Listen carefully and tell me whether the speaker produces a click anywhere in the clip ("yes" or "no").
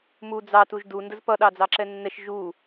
yes